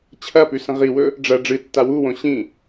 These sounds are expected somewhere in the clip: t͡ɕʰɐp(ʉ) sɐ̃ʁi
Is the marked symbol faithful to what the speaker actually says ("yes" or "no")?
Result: yes